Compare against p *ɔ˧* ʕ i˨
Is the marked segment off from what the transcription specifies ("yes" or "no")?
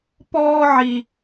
yes